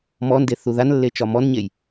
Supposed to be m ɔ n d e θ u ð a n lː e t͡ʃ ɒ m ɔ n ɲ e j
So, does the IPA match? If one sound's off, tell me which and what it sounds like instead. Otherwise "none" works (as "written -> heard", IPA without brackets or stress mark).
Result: none